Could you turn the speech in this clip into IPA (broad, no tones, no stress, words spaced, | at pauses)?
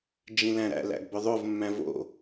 d͡ʒĩlæ̃ɾæ̰ læ̰ɡbœðˤov mːæ̃vo̰